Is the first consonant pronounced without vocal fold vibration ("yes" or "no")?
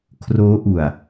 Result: yes